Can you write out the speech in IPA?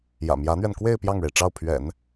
j ä̰˨˩ m j ä˧˥ n̪ ɥ ɛ˧ n k w e˥˧ ɪ̯ p j ɑ˥˩ ŋ ɻ e˩ ɪ̯ ʈ͡ʂ ɑ˥˩ ʊ̯ pʰ ɥ ɛ̰˨˩˦ n

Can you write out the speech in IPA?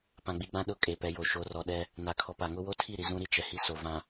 p ã˨ ɡ͡b i˨ ɡ͡b ã˦ ɗ ʊ˦˨ kʼ e˨ p ɛ˨ j o˨ ʃ o˨˦ r ɔ˨ ɗ ɛ˦ | n a˨ kʰ ɔ˨ p a˨ ŋ ʊ˦ w o˦ tʰ i˦˨ ɾ i˨ z ũ˦ ɾ i˦ t͡ʃ ɛ˨ h i˦ s o˨ v ã˨

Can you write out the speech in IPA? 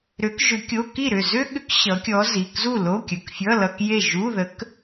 ɾ ʏ˧˥ k ʒ ʏ˧˥ kʲ o˧˥˧ k i˥˨ ɾ ʏ˥˨ z ʏ˥ ɠ ʏ˧˥ k ɕ ʌ˧˥ kʲ ɔ˧˥ z i˩˧˩ k z u˥˨ l o˧˥˧ kʲ ə˩˧˩ k fʲ ʌ˧˥˧ l ʌ˧˥˧ k j e˥˨ ʒ u˧˥˧ ð ə˧˥ k

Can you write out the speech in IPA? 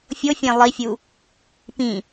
fʲ o fʲ ẽ lˠ i fʲ u | p ĩ

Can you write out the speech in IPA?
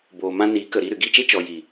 b oː˨ m ã˧ n i˨˦ k ə˨ ɾ i˧ ɾ ɨ˨ ɡ i˦˨ t͡ʃ e˦ t͡ʃ ɔ˨ j i˨

